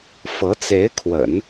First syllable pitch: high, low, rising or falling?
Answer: rising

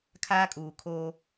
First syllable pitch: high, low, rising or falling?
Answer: high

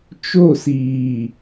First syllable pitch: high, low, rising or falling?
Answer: falling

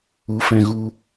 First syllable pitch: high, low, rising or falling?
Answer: rising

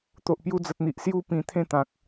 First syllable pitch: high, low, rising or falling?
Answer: low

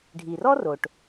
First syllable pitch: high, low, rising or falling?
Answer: low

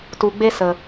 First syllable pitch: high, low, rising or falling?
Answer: low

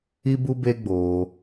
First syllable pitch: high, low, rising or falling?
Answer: high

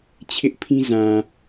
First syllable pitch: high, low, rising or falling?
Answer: high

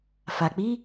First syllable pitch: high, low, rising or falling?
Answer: low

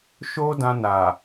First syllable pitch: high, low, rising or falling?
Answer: high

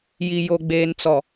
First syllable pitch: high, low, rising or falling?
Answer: low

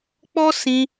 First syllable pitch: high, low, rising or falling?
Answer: high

